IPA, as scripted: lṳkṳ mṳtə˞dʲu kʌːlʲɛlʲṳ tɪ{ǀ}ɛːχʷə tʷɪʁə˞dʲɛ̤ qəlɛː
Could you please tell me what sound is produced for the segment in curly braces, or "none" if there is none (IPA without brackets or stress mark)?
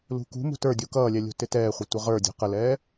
t